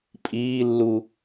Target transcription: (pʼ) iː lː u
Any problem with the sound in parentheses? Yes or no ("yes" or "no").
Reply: no